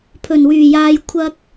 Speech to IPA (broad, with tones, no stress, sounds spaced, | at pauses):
pʰ ɵ˨˩ n w yː˨˩ j aː˨ j kʷʰ ɐ˧ k̚